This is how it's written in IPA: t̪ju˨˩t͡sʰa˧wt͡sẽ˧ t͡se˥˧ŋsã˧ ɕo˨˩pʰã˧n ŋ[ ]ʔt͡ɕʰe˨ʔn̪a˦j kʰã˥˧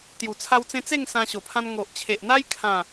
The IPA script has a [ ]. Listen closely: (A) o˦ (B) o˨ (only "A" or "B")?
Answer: B